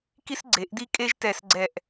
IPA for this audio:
k i˥ s ɡ͡ǀ e˩˧ ʔ d i˥ kʼ e˥ ʒ t ɛ˧˩ s ɡ͡ǀ ɛ˧˩ ʔ

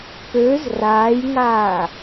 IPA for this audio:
p ø z r aː j ŋ aː

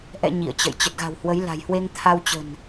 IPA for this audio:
ʔ ɛ̰˧˨ ɲ ḭ˧˨ ə̯ t͡ɕ ə̰˧˨ j t͡ɕ ə˨˩ t̚ ɣ a̤˨˩ w h w ə˨˦ j l a̤˨˩ j h w e˧ ŋ t̪ʰ a˧ w t͡ɕ ə̤˨˩ n

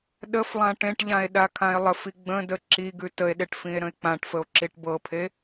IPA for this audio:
ɗ ə f lˠ ã ʈ ẽ ʈ ʎ ã e̯ ɗ a kʰ ã e̯ lˠ ə f i ɡ͡b ə̃ d ə ǁ i ɡ ʉ t ə e̯ ɗ e ʈ f ĩ e̯ ɾ ə̃ e̯ k͡p ã ʈ f ə o̯ ǁ i ʈ b ɤ pʰ e

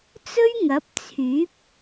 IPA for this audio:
t͡s ɵ˥ ɥ ŋ ɐ˨˥ p̚ t͡sʰ yː˨˥ p̚

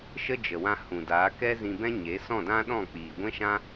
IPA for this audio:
ʃ ə˦ d͡ʒ ə˨ w ã˧ h ũ˨ d aː˨˦ k ɛ˦ z ĩ˧ b ɛ̃˦ ɲ e˨˦ s ɔ̃˦˨ d ã˦ ɗ ɔ̃˦˨ k͡p iː˨ ɡʷ ɛ̃˦ ʃ ã˦

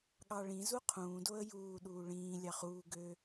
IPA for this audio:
ɠ ɑ ɭ ĩ z u qʰ ũː d o ə̯ j uː ɗ uː ɭ ĩː lʲ ɑ χ uː ɡ ø

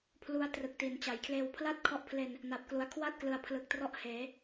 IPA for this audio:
pʰ l u˦˥ a̯ t r ɯ˨˩ k̚ t i˩˦ n t͡ɕ a˩˦ j kʰ l eː˧ w pʰ l a˥˩ t̚ kʰ ɔ˦˥ ʔ pʰ l e˧ n | n a˨˩ p̚ k l u˩˦ a̯ kʰ w a˥˩ t̚ k l ɯ˨˩ a̯ pʰ l ɯ˨˩ k̚ t r ɔ˦˥ ʔ h eː˩˦

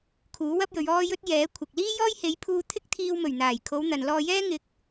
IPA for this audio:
kʰ uː˨˥ w ɐ˥ p̚ j ɵ˨˧ ɥ ɔː˥ j ɵ˥ t̚ j ɛː˨˥ kʷʰ ɪ˨ k̚ l iː˥ j ɔː˥ j h e˨˧ j pʰ uː˧ t̪ʰ ɪ˥ k̚ t̪ʰ iː˧ w m ɵ˨˩ ɥ n̪ aː˨˩ j kʰ o˨˧ w n̪ ɐ˨ n l ɔː˧ j ɛː˥ ŋ ɪ˨˥ k̚

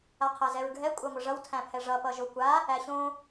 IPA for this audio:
a qʰ æ z ɛ ɹ ɡʱ ɛ kʷʼ a ŋʷ ʌ ʐ ʌ w tʰ æ̃ pʰ ɛ ʐ ʌ p ʌ ʒ o kʷ a | æ ɕ õ

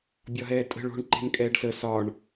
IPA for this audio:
bʲ ɒ ɦ ɛː tʼ ə̤ ɭ o̤ ɳ ǃ e̤ n kʼ ɛː ɖ s ə s ɒ ɳ

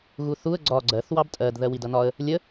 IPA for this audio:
ɣ u θ u ə̯ ɡ͡ǀ ɒ ɡ͡ǀ ɜ θ w ɑ b tʼ ɜ d ð ɜ w i d ʌ n ɒ ə̯ | lʲ ə

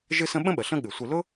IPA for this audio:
ʒ ɨ˦ s ə̃˦ ɓ ə̃˥ ɓ ə˩ ɬ ə̃˦ ɠ ɨ˩ sʷ ɨ˨ l ʊ˥

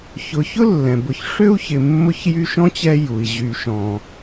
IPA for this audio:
ç ʊ˨ ç ʊ˥ lː ɛ̃˩ b ʊ˨ ç ʂ ø˥ u̯ ç ɪ˨ mː ʊ˦ ç j y˦ ʃ ɔ̃˥ t͡ɕ ɛ˦ j u˩ i̯ ʑ y˨ ʃ ɔ̃˨

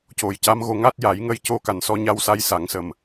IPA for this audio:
c o˨˩ j c a˧˥ m ɣ o˧ ŋ a˦˥ t̚ j a˨˩˦ j ŋ ə˧ j c o˧ k a˨˩ n s ɔ˧ ɲ a˧ w s a˧ j s a˨˩˦ ŋ s ə˨˩ m

